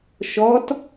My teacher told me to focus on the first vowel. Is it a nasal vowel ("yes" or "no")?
no